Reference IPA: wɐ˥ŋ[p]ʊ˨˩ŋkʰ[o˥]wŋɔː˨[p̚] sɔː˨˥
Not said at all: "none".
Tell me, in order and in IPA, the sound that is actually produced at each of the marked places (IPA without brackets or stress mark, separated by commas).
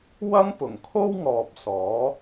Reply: p, o˥, p̚